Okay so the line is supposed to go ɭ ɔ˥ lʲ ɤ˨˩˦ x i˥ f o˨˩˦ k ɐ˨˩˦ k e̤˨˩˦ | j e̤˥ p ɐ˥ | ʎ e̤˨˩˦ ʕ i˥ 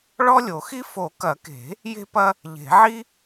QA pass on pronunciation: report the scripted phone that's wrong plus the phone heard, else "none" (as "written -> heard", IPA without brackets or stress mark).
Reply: ɤ˨˩˦ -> o˨˩˦